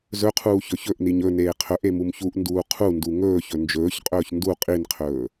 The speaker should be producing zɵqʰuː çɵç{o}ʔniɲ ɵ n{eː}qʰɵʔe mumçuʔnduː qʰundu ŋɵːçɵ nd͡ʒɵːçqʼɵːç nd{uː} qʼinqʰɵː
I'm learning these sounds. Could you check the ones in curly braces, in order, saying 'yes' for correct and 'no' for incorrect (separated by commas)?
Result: no, yes, no